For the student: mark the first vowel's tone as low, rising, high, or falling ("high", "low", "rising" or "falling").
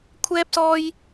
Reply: high